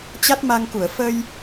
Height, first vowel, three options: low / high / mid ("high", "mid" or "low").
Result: low